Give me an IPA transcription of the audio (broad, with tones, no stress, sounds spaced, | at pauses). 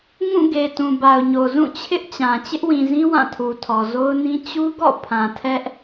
ŋ ũ˦˨ ɡ e˨ t ũ˨ b a˨ ʊ̯ ɲ o˨ z ũ˦˨ t͡ɕʰ ɪ˦ ʔ t͡ɕ ã˨ t͡ɕ ɪ˦ ʔ w ĩ˨ z ĩ˦ w ã˦˨ tʰ u˨ tʰ ɔ˨ z o˦ ʊ̯ n ĩ˦ t͡ɕ u˦ ɡ ɔ̰˦˨ pʰ ã˨ tʰ ɛ˦ ʔ